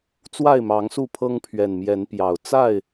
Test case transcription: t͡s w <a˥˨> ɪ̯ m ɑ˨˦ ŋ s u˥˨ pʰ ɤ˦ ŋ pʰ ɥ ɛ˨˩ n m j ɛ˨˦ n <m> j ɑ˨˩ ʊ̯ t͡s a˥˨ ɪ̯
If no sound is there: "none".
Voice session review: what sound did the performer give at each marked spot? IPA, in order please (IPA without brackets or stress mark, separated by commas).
a˥˨, p